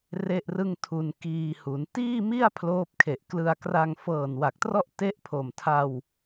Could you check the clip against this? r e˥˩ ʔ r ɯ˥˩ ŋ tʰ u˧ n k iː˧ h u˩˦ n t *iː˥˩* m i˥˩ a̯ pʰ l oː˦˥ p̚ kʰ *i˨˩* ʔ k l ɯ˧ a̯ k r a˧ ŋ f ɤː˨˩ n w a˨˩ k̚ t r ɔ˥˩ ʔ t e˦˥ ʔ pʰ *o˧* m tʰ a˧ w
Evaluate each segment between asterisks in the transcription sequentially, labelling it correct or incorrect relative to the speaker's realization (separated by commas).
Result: correct, incorrect, incorrect